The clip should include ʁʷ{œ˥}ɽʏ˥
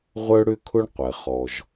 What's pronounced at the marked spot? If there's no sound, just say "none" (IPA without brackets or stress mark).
œ˥